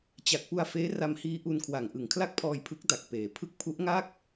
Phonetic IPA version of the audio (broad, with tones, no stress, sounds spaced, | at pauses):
t͡ɕ a˨˩ k̚ p u˧ a̯ f eː˦˥ r a˧ m h iː˦˥ ʔ u˧ n kʰ w a˨˩ ŋ ʔ ɯ˨˩ ŋ kʰ l a˥˩ k̚ pʰ ɔː˧ j pʰ ɯ˦˥ k̚ d a˨˩ k̚ p eː˩˦ pʰ ɯ˦˥ k̚ pʰ u˦˥ ʔ ŋ a˥˩ k̚